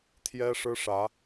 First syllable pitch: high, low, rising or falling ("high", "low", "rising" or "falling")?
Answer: high